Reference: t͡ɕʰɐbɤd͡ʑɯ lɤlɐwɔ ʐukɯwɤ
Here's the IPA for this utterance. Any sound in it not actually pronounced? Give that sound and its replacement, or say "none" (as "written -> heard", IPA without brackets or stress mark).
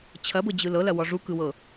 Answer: none